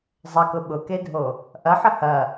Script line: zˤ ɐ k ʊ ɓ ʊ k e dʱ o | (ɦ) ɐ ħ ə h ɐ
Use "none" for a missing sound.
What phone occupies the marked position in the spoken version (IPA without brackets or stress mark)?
ʔ